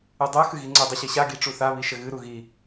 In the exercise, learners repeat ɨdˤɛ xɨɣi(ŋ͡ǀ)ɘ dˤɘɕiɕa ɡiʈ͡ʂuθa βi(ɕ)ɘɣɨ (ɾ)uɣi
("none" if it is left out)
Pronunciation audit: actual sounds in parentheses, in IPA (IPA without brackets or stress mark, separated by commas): ŋ͡ǀ, ʃ, ɾ